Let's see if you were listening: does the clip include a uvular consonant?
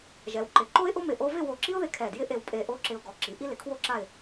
no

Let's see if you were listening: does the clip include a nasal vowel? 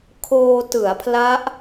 no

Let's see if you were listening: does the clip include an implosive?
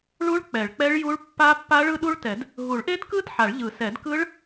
yes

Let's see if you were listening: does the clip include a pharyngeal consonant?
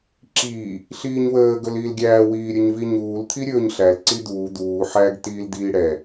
yes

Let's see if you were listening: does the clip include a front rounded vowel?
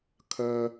yes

